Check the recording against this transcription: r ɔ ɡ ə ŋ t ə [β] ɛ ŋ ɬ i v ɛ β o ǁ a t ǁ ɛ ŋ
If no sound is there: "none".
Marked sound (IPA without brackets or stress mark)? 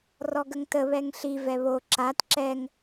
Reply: β